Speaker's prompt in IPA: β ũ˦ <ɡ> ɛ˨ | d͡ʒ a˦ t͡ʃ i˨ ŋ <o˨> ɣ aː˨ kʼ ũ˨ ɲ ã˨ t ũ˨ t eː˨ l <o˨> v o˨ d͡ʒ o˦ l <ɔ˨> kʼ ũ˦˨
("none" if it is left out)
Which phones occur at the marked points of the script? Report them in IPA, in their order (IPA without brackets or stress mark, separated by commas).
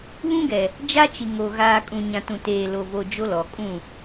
ɡ, o˨, o˨, ɔ˨